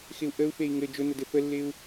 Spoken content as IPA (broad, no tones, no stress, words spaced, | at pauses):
xɪu̯ʔəu̯fei̯ ŋɘ d͡ʒʊnə dɘfəlːɪu̯